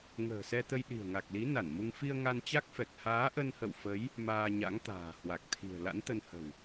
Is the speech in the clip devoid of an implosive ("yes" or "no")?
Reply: no